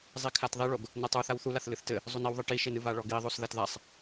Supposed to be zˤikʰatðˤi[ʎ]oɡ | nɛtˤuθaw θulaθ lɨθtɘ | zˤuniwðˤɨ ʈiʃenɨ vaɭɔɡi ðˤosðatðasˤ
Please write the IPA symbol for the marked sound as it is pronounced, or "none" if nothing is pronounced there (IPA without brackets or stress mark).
ɭ